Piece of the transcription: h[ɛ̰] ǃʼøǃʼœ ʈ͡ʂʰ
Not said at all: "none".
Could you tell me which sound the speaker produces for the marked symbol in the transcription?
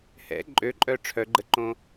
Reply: ɛ̰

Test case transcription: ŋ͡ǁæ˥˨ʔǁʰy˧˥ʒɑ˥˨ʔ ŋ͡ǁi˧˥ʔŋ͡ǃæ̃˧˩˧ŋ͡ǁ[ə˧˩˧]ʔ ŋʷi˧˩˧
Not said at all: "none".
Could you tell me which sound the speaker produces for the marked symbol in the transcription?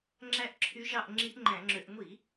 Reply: ø˧˩˧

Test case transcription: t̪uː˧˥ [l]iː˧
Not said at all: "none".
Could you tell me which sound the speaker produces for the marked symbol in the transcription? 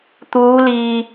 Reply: l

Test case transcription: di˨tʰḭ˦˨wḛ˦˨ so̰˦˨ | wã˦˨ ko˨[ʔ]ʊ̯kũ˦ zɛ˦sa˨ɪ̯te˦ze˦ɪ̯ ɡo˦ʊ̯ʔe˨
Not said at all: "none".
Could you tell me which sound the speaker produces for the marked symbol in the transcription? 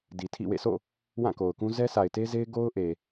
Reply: none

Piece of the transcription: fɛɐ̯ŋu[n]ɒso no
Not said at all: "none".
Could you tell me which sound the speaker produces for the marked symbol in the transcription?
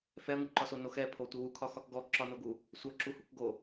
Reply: ǃ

